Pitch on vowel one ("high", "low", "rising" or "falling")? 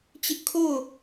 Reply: high